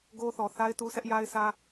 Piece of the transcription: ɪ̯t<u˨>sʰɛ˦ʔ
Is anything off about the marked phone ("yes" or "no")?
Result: yes